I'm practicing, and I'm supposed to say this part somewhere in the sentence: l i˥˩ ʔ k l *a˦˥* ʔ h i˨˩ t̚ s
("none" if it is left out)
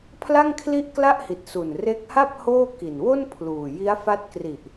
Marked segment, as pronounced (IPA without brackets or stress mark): a˥˩